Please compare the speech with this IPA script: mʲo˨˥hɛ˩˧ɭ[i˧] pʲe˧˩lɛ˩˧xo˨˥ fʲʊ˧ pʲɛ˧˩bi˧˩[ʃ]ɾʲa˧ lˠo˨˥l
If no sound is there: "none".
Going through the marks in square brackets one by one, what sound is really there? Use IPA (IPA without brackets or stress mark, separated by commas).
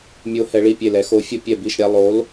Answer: i˧˩, ʃ